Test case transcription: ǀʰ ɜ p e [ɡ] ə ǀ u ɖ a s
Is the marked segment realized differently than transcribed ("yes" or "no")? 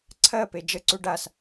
yes